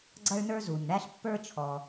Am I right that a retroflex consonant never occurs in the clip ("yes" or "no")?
no